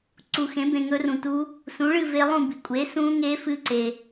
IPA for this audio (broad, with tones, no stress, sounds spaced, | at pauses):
ǀ u˧ x ẽ˨˥ b ẽ˧ ŋ ɵ˦˥ r ũ˧ t u˦˥ | s ũ˨˥ ɭ ɨ˥˧ v e˦˥ lˠ ũ˥˧ b i˧ kʷʼ e˨˥ s ũ˦˥ ŋ e˦˥ f ɨ˦˥ ǀ e˧